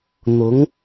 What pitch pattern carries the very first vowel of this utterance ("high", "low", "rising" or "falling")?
rising